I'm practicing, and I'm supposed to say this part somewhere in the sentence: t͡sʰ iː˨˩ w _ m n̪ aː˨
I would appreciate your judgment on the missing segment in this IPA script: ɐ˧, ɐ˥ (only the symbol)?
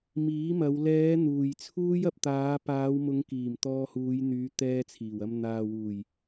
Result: ɐ˧